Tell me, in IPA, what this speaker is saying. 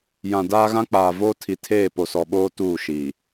j ã˨ d aː˦ ɣ ã˦ k͡p aː˨ v oː˦ tʰ i˨ tʰ eː˦˨ p o˨ s ɔ˨ ɓ oː˦ t uː˦˨ ʃ iː˨

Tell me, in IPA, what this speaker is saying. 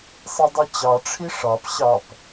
sˤ i dˤ i t͡ɕ ɑ ʈ͡ʂʰ i ʂ ɑ p ɕ ɑ p

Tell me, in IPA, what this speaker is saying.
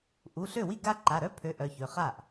ʔ u˩˧˩ ɬ ø˥˩ w i˥˩ ɡ a˥ ǃ a˩˧˩ ɾ œ˥ pʰ ø˨˥ ʔ œ˩˧˩ ç ø˩˧˩ χ a˥˩ ʔ

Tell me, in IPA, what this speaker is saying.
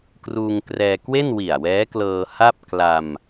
k r uː˧ ŋ k r ɛː˧ k w e˥˩ n w i˨˩ a̯ w ɛː˦˥ k l ɤː˧ h a˥˩ p̚ k l a˧ m

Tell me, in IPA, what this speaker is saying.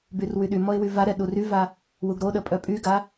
b y r w y ɗ y m ɔ ɪ̯ w y v a ɾ ɛ ɗ u r y v a | w u ɡ ɾ o ɗ ə pʼ œ pʼ y ɡ a

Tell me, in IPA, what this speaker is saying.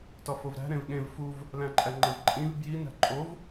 t ɒ f o v ɾ æ̤ ɾ ẽ v ɠ ẽ v f u v | l æ̃ ǃʼ æ ŋ͡ǃ e v ǃʼ ĩ v b j i n æ̤ ǃʼ o v

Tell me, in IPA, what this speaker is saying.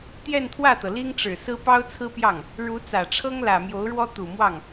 t̪ j ɛ˥˧ n t̪ʰ w ä˥˩ t̪ ɤ˩ l i˥ ŋ ʈ͡ʂ ɻ̩˨˩ s ɹ̩˥ p ɑ˥ ʊ̯ t͡sʰ ɹ̩˥ p j ɑ˥˩ ŋ | ɻ u˧˥ t͡s ä˨˩ ʈ͡ʂʰ ɤ˥ ŋ l ä˨˩ m j o˧˥ ʊ̯ ɻ w ɔ˥ t̪ u˨˩ m w ɑ˥˩ ŋ

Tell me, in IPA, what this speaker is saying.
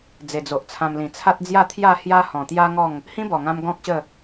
d͡z e˨˩ d͡z o˨ ʔ t͡sʰ ã˧ m l ĩ˨˩ t͡sʰ a˦ t̚ d͡z j a˥˧ t̪ʰ j a˥˧ h j a˦ h ɔ̃˨˩ t̪ j a˦ ŋ ɔ˥˧ ŋ | h ĩ˦ b ɔ˨˩ ŋ ã˧ m ɡ ɔ̃˦ k̚ ɕ ə˥˧

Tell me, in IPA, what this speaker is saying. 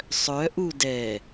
sˤ œ ʔ u d ɛ

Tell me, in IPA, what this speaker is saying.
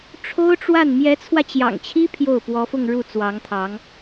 ʈ͡ʂʰ o˥ ʊ̯ ʈ͡ʂ w a˥˩ n m j ɛ˧˥ t͡sʰ w ä˧ t͡ɕ j ɑ̰˨˩ ŋ t͡ɕʰ i˥ pʰ j o˥˩ ʊ̯ p w ɔ˧˥ f ʊ˥˧ ŋ ɻ u˥˩ t͡s w ɑ˧˥ ŋ t̪ʰ ɑ˧˥ ŋ

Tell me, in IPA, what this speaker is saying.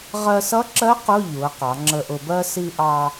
ʁ ɜ˧ s ʌ˧˥ ǁ ɜ˧˥ q ʊ˧˥˧ ʎ u˩˧ ə̯ q ɑ˩˧ ŋ͡ǁ ə˧ ʔ ʊ˧ b ɜ˧ s i˧ ʔ ɑ˧

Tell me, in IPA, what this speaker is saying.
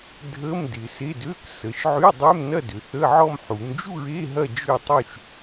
dʱ ə˧˥˧ m d ɪ˩˧ s e˧˥˧ d ø˧˥˧ k s ə˩˧ ʃ ʕ y˧˥˧ dˤ ʏ˧˥˧ m n ɐ˥˧ d ʏ˩˧ θ ə˧˥˧ ʕ ɔ˥˧ m ħ u˩˧ m d͡ʒ u˥˧ ɹ e˧˥˧ ɦ ɐ˥˧ d͡ʒ ø˥˧ tˤ y˥˧ ʃ

